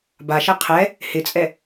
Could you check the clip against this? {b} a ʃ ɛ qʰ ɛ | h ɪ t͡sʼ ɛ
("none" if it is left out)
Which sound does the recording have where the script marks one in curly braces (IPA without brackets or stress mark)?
b